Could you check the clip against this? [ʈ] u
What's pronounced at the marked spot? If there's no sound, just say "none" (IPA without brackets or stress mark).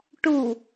ʈ